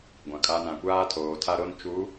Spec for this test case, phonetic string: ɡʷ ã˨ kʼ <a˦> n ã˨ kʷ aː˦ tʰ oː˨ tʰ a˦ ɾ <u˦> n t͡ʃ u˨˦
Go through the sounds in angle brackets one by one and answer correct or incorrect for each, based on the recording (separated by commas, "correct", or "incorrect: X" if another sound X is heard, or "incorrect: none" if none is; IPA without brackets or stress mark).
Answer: correct, incorrect: o˦